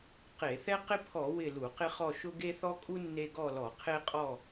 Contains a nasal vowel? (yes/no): no